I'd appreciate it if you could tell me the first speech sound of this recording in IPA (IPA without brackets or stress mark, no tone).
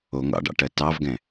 o